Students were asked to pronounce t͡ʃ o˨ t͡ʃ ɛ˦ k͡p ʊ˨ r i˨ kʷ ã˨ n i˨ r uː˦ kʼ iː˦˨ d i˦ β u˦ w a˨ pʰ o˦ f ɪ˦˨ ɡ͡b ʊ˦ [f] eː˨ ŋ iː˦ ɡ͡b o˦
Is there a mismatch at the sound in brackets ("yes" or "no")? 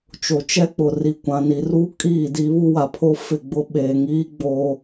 yes